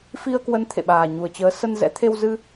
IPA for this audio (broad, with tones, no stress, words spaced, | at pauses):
fi˧ə̯kwə˨˦n t̪ʰḛ˧˨ɓaː˨˩ɲu˨˩ə̯t͡ɕəː˨˦ sə˧nzɛ̰˧˥ t̪ʰe˧w zɨ˧